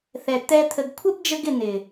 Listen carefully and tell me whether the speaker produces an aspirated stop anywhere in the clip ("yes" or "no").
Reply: yes